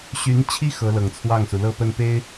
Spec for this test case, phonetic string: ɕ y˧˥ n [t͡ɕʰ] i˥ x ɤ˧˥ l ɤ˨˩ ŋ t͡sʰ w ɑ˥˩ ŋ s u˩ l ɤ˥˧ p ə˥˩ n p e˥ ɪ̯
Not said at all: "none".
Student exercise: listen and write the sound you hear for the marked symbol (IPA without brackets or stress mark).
t͡ɕʰ